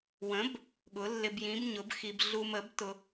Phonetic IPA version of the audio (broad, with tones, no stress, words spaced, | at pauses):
wə̃˨˥b | ɠʊ˨˥lːɪ˧bjĩ˨˥b ɲʊ˨˥bxi˧b ɮu˧mə˨˥btʊ˧